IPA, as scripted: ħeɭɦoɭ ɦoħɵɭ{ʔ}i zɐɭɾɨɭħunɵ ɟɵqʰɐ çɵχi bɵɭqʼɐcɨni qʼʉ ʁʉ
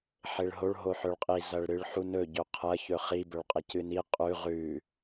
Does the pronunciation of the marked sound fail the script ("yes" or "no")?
yes